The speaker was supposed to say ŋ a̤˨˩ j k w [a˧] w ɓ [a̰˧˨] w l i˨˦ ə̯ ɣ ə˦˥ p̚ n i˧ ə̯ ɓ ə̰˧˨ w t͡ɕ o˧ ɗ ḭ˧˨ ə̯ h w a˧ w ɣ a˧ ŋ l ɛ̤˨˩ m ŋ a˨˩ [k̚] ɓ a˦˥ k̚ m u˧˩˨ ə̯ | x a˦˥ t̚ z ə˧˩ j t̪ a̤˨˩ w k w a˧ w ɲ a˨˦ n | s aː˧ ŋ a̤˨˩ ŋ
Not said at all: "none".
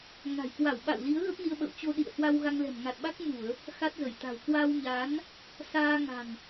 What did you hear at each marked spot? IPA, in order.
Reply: a˧˩, a̰˧˨, t̚

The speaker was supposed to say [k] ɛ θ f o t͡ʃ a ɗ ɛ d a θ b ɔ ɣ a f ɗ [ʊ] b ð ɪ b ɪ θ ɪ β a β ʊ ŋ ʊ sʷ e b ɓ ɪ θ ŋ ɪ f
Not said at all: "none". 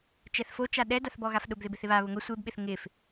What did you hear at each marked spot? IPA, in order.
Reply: t͡ʃ, ʊ

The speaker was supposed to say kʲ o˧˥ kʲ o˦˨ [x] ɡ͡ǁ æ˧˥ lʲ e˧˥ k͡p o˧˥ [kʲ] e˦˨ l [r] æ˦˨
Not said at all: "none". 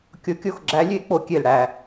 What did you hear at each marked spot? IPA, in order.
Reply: x, kʲ, ɽ

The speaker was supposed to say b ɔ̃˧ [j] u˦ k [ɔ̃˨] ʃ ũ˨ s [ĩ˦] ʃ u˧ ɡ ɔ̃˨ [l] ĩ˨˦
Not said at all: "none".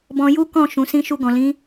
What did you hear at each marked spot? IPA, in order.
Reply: j, ɔ̃˦˨, ĩ˧, l

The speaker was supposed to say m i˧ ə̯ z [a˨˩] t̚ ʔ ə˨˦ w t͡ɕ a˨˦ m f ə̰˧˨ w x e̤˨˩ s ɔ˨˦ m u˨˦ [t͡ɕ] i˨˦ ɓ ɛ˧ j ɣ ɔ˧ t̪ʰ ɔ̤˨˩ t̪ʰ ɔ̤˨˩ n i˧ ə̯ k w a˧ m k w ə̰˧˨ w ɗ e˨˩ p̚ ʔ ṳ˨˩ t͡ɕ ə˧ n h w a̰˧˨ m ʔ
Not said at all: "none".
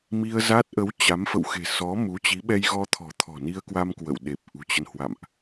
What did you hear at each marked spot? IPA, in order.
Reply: a˦˥, t͡ɕ

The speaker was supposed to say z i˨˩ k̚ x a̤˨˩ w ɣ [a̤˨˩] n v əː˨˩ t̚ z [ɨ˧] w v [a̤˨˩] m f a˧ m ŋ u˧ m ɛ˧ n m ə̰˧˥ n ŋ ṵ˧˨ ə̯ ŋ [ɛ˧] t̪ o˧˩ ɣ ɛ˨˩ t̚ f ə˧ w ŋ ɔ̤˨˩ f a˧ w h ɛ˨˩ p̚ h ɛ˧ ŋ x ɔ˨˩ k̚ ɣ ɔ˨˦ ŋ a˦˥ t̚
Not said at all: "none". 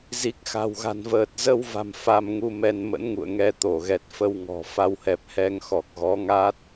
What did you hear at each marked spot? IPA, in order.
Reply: a̤˨˩, ə˧, a̤˨˩, ɛ˧

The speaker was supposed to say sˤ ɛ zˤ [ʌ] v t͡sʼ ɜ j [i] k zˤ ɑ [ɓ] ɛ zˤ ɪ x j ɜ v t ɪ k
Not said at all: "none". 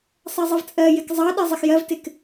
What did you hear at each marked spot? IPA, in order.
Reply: ʌ, ɪ, ɗ

